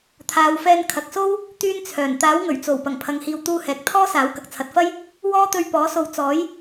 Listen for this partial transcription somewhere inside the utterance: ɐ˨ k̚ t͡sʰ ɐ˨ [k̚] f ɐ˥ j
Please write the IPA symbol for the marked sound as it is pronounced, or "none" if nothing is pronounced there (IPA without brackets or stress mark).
t̚